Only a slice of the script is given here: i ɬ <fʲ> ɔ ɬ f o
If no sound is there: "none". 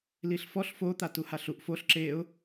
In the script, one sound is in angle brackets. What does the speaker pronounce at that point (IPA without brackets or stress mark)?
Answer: f